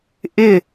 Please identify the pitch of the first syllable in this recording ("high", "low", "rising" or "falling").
falling